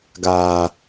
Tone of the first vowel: low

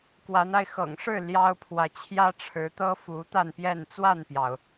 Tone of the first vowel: rising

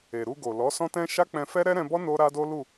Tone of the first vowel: low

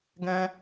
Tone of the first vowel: high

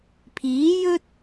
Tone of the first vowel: rising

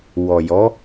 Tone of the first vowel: low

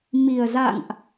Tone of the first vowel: low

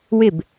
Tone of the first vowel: falling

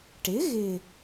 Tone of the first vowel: rising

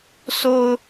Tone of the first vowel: high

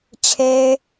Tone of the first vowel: high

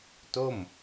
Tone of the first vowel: falling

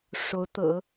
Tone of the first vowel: rising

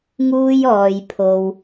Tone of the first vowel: high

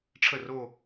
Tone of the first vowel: falling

